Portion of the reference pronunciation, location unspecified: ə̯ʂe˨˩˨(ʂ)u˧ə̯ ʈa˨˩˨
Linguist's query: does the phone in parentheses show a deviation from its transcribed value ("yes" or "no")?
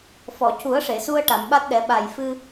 yes